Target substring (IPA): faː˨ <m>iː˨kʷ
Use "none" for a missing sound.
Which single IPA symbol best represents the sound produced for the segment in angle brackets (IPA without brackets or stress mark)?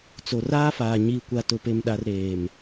ɲ